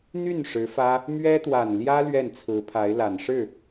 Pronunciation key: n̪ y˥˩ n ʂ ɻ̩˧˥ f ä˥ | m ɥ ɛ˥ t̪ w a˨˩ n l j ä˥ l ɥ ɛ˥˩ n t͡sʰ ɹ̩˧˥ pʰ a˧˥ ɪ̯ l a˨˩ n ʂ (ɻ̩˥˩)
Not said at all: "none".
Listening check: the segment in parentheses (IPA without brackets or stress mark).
ɻ̩˥˩